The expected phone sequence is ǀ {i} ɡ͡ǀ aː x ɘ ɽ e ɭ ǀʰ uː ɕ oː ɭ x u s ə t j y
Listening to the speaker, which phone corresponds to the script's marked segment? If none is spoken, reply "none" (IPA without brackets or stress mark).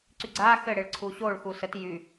y